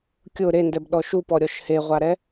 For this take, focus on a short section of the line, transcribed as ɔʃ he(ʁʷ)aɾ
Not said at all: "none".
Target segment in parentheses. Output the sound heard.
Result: ʁʷ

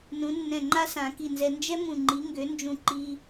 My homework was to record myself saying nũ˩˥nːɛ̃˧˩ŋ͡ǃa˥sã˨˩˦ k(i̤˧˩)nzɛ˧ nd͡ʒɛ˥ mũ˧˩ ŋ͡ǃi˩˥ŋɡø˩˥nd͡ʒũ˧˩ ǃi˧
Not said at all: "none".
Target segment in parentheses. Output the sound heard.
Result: i˧˩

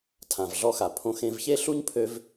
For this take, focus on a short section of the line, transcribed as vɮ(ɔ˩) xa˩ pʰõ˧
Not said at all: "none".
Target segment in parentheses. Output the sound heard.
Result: ɔ˧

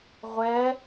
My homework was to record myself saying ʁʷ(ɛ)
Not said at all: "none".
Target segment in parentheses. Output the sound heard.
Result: ɛ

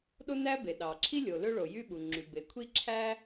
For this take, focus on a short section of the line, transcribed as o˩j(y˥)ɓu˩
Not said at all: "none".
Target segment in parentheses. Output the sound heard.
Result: y˥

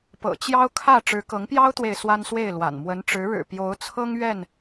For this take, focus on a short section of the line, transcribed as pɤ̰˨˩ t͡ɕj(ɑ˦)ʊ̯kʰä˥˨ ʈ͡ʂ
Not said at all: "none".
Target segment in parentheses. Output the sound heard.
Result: ɑ˦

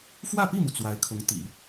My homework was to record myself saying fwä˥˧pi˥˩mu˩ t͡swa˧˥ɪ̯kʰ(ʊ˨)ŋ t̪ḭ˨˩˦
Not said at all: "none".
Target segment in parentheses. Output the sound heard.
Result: ʊ˧˥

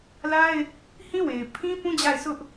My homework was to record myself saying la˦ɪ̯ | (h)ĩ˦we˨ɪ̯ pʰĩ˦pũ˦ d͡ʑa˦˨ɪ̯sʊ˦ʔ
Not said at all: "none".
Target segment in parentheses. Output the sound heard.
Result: h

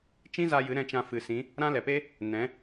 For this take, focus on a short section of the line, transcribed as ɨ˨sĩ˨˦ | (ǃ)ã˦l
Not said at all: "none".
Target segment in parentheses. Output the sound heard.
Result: ɾ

